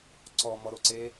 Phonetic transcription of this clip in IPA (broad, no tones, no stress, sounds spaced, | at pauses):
ǀ ɔ m ɔ ɾ o ǀ e